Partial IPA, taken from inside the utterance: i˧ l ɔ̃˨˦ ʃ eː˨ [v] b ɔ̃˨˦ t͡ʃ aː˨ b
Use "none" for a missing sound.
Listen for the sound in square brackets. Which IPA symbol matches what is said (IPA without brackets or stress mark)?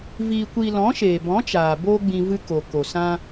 none